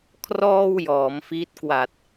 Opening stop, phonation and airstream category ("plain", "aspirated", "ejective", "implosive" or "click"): aspirated